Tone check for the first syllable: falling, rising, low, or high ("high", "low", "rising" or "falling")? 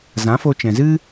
rising